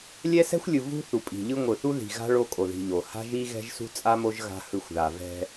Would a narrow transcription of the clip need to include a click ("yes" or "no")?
no